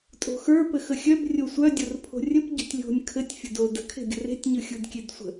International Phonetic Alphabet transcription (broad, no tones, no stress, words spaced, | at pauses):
tʼo̤xə˞ pɘxəxʲœb rʲosʷœ dʲorpʰo̤rʲəp ɟo̤tʲlʲo̤nʲ kʰɘtʲ fʲɘdodə̤ kʰe̤ɡʲə̤re̤tʲ ɲɯxʲɯdkʲedsʷə̤